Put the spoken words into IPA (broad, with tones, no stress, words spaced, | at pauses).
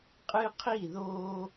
qʼɨ˦qʰi˦˨ðoː˦